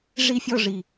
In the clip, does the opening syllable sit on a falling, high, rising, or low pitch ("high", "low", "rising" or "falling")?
falling